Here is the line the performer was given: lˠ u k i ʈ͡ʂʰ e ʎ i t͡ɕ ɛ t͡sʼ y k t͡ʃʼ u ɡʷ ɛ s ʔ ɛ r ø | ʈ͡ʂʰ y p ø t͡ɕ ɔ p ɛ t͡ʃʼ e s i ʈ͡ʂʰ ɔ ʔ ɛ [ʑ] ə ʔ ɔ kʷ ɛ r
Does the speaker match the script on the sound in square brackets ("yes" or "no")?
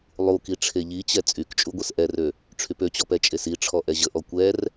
yes